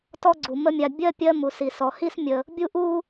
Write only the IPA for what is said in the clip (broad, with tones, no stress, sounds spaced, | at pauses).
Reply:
t ɔ˦ ɡ͡ǀ u˩ m ə˦ mʲ a˨ bʲ ɜ˥ pʲ ɜ˦ m u˩ s i˩ s ɔ˩ h i˦ s mʲ ə˩ | bʲ u˥ ʔ u˥